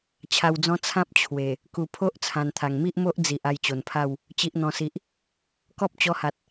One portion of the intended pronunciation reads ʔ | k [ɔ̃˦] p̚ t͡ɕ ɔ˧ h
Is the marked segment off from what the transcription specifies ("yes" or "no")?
yes